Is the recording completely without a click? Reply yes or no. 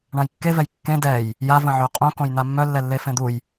yes